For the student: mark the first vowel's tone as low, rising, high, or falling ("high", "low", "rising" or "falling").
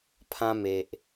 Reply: high